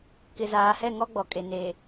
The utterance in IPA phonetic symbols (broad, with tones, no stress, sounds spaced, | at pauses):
k ɪ˨ z aː˨ h ɛ˦˨ ŋ ɔ˦ ɡ͡b ɔ˨ kʼ e˨ n e˨